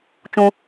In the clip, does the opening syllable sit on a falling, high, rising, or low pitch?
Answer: high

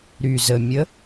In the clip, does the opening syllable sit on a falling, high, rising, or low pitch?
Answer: low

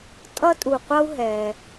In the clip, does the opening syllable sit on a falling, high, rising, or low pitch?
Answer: high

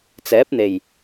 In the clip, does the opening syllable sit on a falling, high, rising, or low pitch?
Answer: rising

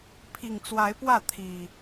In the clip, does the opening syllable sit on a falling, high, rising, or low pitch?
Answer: low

